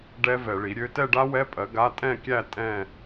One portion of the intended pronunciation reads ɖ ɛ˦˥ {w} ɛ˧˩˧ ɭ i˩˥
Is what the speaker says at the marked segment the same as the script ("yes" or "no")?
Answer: no